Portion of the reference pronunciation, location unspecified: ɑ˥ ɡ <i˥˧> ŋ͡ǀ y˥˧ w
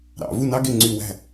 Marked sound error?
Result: yes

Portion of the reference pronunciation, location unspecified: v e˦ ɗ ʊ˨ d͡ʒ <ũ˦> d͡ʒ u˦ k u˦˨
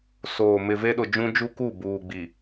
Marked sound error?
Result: no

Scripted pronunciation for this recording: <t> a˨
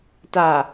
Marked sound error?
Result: no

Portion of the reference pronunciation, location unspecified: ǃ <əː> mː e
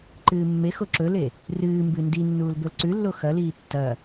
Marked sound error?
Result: yes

